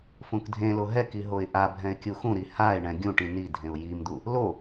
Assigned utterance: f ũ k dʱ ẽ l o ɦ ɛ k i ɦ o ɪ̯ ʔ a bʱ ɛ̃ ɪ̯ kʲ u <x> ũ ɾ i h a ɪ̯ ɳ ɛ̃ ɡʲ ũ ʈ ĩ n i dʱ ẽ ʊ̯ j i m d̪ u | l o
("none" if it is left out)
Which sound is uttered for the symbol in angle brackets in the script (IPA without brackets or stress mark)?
x